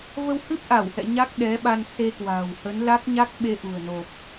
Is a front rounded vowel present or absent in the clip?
absent